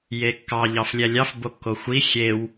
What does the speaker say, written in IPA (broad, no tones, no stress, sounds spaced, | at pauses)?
j e kː ɑ ʎ ɑ f lʲ æ lʲ ɑ f b o kː o xʷ i xʲ e w